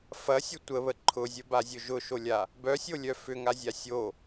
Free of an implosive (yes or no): yes